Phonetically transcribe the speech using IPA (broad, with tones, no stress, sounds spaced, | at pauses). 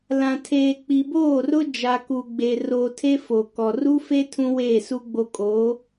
l ã˨ tʰ eː˨ k͡p i˨ b oː˦˨ r ʊ˦ d͡ʒ a˨ k u˨ ɡ͡b e˨ r o˨ tʰ e˦ f o˨ k ɔ˨ r u˦ f e˦ tʰ ũ˦ w eː˦˨ s u˦ ɡ͡b o˦ kʼ oː˨˦